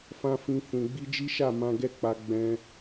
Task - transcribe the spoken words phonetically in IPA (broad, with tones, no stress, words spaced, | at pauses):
fã˦fĩ˧ fũ˨ ɡ͡bi˧d͡ʒi˦ʃa˦˨ mã˧ɡɛ˦k͡pa˧ ɡ͡bɛ̃˧